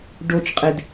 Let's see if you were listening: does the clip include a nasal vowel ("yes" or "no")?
no